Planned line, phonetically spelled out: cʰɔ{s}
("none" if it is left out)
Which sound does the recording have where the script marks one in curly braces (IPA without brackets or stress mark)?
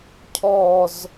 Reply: z